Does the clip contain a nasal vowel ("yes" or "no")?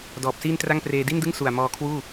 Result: no